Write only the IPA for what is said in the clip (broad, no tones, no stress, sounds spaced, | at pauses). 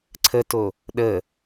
ǀʰ ə t o | ɗ ə